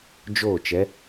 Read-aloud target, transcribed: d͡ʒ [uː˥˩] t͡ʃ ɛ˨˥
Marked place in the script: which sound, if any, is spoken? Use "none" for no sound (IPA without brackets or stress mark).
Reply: oː˥˩